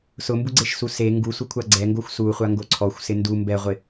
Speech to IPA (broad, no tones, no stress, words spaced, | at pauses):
sʊmbuɡ͡ǀeʃsu se ŋɡusʷɪkʷʰa ɡ͡ǀɛŋɡoxʷ suχʷaŋɡo ǀʰɔxʷsɪ ndu mbɛʁʷɪ